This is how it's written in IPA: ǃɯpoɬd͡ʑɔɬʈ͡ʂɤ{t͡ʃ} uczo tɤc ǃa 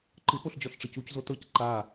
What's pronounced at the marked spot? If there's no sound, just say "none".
c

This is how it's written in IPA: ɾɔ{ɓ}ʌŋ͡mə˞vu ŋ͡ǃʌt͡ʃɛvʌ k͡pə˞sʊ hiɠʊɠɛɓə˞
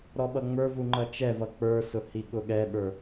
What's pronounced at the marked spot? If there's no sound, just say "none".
ɓ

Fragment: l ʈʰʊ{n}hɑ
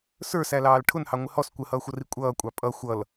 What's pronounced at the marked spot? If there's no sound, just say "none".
n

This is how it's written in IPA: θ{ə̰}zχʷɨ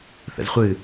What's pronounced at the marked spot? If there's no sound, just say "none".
ə̰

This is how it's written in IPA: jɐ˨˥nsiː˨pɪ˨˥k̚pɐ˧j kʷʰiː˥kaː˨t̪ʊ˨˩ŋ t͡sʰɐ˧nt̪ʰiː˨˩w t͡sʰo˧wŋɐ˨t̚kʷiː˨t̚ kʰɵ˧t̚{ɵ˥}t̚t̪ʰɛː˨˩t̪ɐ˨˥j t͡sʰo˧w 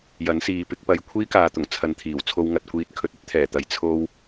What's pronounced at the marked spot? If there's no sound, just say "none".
ɵ˥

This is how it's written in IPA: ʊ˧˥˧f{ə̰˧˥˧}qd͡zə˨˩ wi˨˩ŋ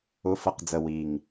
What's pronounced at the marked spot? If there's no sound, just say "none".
ə˧˥˧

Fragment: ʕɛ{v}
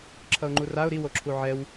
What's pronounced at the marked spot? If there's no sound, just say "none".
w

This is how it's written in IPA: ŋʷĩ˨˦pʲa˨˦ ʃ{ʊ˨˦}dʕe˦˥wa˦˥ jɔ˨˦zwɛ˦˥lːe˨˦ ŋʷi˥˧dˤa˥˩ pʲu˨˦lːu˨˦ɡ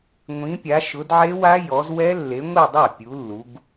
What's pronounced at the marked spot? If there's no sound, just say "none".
ʊ˨˦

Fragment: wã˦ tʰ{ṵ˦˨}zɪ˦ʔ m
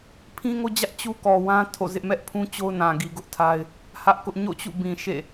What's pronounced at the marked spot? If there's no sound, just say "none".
o̰˦˨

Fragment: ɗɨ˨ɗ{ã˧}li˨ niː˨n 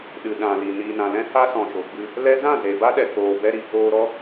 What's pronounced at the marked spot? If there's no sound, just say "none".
ã˨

